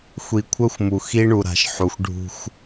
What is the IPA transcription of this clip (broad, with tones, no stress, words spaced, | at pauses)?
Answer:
xʷi˨kʷʰœ˦xʷmu˨ xi˦ɳu˨ ɾa̤˨ʃħu˨xʷ ɖʱṳ˦xʷ